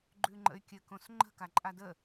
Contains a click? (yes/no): yes